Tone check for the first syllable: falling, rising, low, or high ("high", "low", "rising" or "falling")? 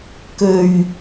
low